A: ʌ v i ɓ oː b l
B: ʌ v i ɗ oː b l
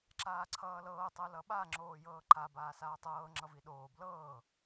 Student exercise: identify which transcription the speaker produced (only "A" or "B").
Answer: B